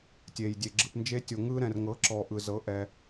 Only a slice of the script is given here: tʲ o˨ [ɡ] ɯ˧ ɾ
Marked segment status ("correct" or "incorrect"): incorrect